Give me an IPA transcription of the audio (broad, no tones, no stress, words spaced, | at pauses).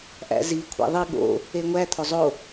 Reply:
ʔæ̰zi kʷʰæ̰ðˤi ɠo̰ | eŋʷæ t̪ʰozˤo